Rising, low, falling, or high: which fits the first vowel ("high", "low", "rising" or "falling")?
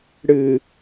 low